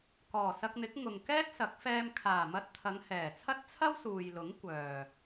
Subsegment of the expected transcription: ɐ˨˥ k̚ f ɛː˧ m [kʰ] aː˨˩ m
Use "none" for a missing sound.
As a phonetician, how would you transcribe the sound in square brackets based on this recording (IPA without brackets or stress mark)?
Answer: kʰ